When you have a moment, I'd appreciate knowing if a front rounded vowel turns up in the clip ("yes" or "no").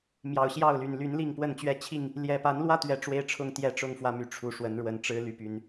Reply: yes